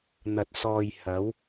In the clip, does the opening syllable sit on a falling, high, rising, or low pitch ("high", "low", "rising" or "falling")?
low